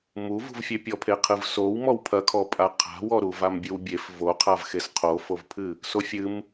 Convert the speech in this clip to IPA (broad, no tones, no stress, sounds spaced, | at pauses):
m u v ṳ v fʲ e pʲ ɔ pʰ e qʰ ɨ v s o w m ɔ w pʰ ɐ kʰ ɔ pʼ a qʰ a̤ w ɔ ɾ u v a m bʲ ɨ w bʲ e f v o qʰ a v x e s qʰ o f o v pʰ ɨ | s o fʲ ɨ m